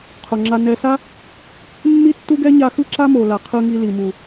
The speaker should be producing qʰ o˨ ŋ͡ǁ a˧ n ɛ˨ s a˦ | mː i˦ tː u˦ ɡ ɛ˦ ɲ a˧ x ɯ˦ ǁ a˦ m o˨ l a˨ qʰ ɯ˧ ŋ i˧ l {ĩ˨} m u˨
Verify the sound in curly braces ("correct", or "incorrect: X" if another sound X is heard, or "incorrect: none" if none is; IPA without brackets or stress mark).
incorrect: i˨